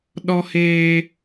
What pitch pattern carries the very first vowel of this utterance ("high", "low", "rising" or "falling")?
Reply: high